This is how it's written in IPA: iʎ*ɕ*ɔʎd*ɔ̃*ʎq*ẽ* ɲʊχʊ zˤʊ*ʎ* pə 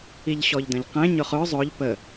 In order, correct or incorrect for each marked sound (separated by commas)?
correct, incorrect, correct, correct